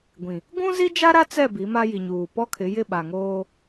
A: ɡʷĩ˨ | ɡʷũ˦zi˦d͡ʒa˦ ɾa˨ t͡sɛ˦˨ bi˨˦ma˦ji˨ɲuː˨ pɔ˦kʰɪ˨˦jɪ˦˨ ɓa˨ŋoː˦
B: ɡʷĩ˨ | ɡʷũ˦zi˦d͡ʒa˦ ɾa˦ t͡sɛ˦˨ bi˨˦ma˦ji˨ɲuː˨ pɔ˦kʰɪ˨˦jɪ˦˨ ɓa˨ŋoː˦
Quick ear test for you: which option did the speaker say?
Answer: B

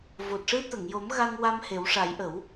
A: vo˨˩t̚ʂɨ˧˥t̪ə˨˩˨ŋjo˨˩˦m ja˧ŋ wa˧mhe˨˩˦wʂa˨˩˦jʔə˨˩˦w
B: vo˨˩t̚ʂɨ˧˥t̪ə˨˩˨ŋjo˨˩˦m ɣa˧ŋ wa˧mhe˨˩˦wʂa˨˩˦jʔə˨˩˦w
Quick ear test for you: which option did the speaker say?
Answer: B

